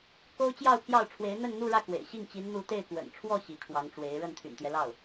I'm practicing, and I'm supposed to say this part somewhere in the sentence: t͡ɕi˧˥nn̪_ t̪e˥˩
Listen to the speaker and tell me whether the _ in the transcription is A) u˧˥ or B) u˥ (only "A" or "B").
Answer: A